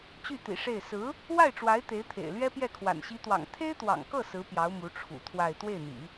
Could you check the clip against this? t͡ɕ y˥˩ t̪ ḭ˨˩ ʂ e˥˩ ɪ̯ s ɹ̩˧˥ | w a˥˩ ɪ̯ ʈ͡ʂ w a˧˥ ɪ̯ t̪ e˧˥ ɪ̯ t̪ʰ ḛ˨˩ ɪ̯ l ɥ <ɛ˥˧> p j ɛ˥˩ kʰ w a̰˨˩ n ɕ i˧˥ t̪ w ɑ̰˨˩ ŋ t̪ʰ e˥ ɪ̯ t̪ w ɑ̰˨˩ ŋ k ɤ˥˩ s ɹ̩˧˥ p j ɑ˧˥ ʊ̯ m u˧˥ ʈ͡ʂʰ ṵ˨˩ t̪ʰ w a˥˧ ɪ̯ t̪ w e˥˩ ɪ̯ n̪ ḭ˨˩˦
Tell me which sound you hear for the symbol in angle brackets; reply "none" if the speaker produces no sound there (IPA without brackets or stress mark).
ɛ˥